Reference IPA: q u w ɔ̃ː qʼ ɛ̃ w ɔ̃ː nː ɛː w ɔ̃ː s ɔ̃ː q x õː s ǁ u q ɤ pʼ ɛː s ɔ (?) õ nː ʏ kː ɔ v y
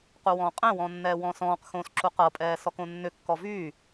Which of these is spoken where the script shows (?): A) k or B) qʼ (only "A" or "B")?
A